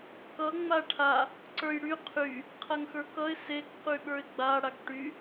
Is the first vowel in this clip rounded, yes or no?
no